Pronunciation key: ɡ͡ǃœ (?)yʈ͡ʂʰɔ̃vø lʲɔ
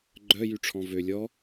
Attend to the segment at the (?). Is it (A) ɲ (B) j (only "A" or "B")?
B